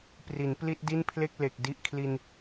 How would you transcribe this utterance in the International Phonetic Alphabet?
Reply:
p r i˩˦ n p l i˥˩ t̚ d i˥˩ n pʰ l e˥˩ k̚ l e˨˩ k̚ d i˦˥ ʔ kʰ l i˧ n

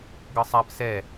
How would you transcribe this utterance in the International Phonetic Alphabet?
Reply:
ɡ ɤ sˤ a p s ɛ

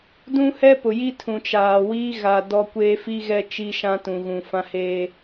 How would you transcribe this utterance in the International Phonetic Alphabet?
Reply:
d ũ˦ h ɛ˦ p ʊ˨ j i˦ tʰ ũ˨ t͡ʃ aː˨ w iː˦ ɣ a˨ d ɔ˦ kʷ eː˦ f i˦ ɣ ɛ˦ t͡ʃ i˦ ʃ ã˦ t ũ˨ ɣ ũ˨ f ã˦ h eː˦

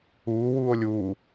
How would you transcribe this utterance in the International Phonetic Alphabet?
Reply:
uː w uː o̯ lʲ uː

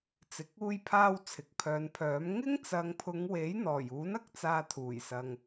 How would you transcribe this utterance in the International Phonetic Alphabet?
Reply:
t͡s ɪ˨ k̚ uː˧ j pʰ aː˧ w t͡sʰ ɪ˨ k̚ pʰ œː˨˧ n pʰ œː˨˥ m ŋ ɪ˥ ŋ t͡s ɐ˨˧ ŋ pʰ ʊ˨˧ ŋ w e˨˥ j n̪ ɔː˨˩ j uː˨˥ n ɐ˨ k̚ t͡s aː˧ t̪ʰ uː˨˩ j s ɐ˨ ŋ

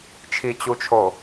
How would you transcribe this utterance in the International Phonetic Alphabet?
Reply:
t͡ʃʰ i t͡ɕ u t͡ʃʰ o

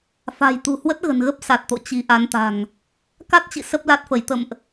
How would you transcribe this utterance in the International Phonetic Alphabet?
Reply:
f a̤˨˩ j t̪ ṳ˨˩ h w ə˦˥ t̚ ɣ ə̤˨˩ n ɣ ə˦˥ p̚ s a˨˩ t̚ t̪ o̰˧˨ t͡ɕ i˨˦ ʔ a˨˦ n t̪ a̤˨˩ ŋ | k a˦˥ t̚ t͡ɕ ḭ˧˨ s ə˦˥ p̚ l a˦˥ t̚ f ə˧˩ j t̪ ə̰˧˨ m ʔ

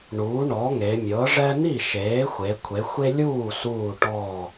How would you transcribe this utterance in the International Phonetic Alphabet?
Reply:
ɳ uː˩˥ ɳ ɔ˩˥ ŋ e˩˧ mʲ ɤ˩˥ ʐ ɛ˦ n i˥˩ ʃ eː˩˥ xʷ e˩˧ kʷʰ e˩˧ xʷ e˦ lʲ uː˥˩ s uː˧˩ ʈ ɔ˧˩

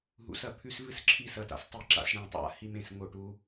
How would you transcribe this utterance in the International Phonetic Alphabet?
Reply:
ɦ ṵ˨˦ s ɐ˨ pʰ ʉ˦ s v ɨ˦ s ǁʰ i˧ s ɐ˨ t a̰˨ s tˤ i˧ ǁ a̰˨ s ɽ ẽ˦˨ tˤ a̰˦ h i˧ m ẽ˨ s ŋ o˨ ʈ u˧

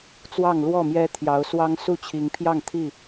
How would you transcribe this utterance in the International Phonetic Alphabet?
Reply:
t͡s w ɑ˥˨ ŋ l w ɔ˥˨ m j ɛ˦ t̪ʰ j ɑ˨˦ ʊ̯ s w ɑ˦ ŋ s u˥˨ t͡ɕʰ i˨˦ ŋ pʰ j ɑ˥˨ ŋ t̪ʰ i˥˨

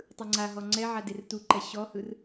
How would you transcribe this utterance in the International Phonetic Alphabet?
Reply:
tˤ ɯ ŋ͡ǀ a ɦ ɔ ŋ͡ǀ ɛ ʕ a d e r t u ǃ ɛ ɕ ɔ h ɯ r

